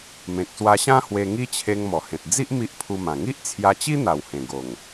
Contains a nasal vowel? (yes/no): yes